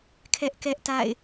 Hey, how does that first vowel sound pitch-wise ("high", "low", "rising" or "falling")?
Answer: high